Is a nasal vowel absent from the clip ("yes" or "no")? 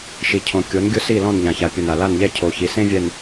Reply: no